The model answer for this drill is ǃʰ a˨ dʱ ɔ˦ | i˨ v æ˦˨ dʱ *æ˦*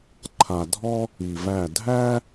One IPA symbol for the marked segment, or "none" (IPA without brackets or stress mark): æ˦